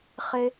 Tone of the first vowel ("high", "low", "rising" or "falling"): high